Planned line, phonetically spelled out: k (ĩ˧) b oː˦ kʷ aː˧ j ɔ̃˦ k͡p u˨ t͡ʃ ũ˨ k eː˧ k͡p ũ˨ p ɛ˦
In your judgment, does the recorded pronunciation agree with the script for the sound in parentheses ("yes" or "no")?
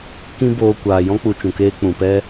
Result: no